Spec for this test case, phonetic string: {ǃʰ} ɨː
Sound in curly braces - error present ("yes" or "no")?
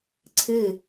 yes